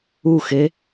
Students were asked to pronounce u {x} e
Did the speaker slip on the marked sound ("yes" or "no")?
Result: no